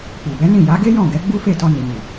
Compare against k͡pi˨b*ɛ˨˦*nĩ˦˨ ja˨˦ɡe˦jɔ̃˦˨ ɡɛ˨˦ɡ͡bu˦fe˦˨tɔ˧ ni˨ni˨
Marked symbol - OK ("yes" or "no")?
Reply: yes